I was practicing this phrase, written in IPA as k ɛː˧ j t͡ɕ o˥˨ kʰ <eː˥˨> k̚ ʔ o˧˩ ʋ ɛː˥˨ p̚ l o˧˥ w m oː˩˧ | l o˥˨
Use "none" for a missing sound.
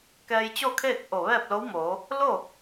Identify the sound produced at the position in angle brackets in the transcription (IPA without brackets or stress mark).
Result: eː˥˨